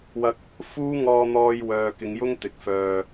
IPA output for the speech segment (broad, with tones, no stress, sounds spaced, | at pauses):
w ɐ˧ k̚ | f uː˥ ŋ ɔː˧ n̪ ɔː˧ j w œː˨ k ɪ˨˧ ŋ j ʊ˥ ŋ t̪ ɪ˨ k̚ f œː˧